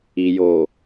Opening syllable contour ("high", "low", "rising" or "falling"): low